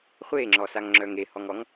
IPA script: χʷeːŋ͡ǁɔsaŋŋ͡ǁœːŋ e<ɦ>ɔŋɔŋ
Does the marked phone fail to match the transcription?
yes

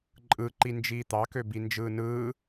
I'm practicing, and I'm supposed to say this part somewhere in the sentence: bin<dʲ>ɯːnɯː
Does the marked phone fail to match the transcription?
yes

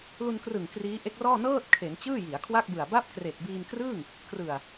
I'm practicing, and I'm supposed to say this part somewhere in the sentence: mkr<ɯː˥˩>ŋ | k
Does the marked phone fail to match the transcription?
no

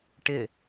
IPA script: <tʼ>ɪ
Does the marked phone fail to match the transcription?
yes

